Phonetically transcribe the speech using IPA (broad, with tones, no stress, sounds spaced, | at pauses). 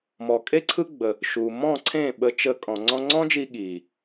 m ɔ˨ kʼ e˦ ǀʰ ɯ˦ ɡ͡b ə˧ | ʃ u˨ m ɔ̃˦˨ ǀʰ ẽ˦˨ ɓ ə˧ t͡ʃ ə˧ kʼ ɔ̃˨ ŋ͡ǀ ɔ̃˧ ŋ͡ǀ ɔ̃˦ d͡ʒ i˧ ɠ i˨